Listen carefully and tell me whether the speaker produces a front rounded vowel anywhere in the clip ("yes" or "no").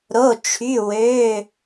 yes